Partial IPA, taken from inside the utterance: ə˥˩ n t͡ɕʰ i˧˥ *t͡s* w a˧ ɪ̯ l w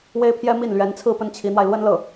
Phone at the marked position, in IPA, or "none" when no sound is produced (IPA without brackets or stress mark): n̪